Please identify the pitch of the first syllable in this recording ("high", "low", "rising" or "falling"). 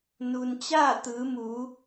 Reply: low